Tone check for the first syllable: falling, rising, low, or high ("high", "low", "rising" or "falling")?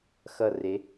low